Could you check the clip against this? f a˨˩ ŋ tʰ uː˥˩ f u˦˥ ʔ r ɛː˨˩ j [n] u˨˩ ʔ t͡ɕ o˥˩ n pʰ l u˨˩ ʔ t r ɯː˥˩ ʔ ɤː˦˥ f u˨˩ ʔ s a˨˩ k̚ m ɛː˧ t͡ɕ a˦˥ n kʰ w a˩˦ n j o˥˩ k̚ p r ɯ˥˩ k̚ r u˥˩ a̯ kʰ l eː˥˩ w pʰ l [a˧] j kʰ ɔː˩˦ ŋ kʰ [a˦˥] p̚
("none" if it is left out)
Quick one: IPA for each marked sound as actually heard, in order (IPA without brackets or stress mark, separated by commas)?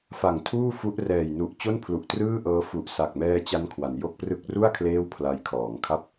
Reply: n, a˧, a˥˩